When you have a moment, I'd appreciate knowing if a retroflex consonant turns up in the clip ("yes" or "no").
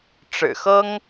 yes